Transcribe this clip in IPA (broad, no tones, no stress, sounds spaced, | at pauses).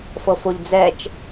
f ɤ f o ʎ d͡z ɛ t͡ʃ